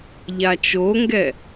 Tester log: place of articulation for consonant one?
palatal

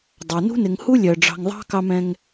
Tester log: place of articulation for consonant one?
alveolar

